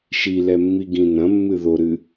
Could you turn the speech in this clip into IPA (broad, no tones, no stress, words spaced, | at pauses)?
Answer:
ʃilɛmːiɡĩ nɐ̃mːɨ ðoɾɨ